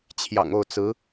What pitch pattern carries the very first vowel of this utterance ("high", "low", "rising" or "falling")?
low